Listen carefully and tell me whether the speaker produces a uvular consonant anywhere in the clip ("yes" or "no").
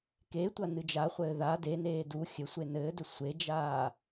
yes